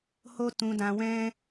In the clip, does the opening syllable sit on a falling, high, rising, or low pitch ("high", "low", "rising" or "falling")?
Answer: high